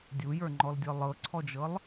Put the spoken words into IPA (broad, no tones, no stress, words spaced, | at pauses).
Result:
dʲujə˞ŋ͡ǃɔldʲɤ lˠɤǀʰɔd͡ʒɤlˠ